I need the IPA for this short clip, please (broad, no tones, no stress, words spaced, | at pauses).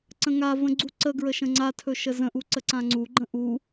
ǀə̃ŋavə̃ ɡ͡ǀuǀəɡɹə ʃə̃ŋ͡ǀatʰɵ ʃəzə̃ʔu ǀəǀãŋ͡ǀuɡ͡ǃə̃ ʔu